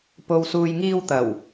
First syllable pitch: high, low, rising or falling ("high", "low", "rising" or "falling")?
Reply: low